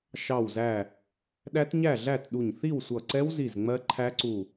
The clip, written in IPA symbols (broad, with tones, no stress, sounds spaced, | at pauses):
ʃ ɑ˧˩ w z æ˧˩ | ɗ æ˦˥ t ɲ æ˥˨ ɮ æ˥˨ t ɗ u˧˩ ɲ θ i˥˨ w sʷ ʌ˧˩ ǀ ɛ˦˥ w z i˧˩ z ŋ͡m ɜ˦˥ ǃʰ æ˦˥ ǀ u˧˩